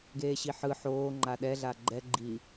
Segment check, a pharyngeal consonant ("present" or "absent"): present